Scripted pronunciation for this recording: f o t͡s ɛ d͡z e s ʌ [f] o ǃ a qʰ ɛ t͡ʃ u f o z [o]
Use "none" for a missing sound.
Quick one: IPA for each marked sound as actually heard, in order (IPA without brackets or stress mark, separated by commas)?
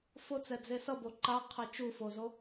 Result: b, o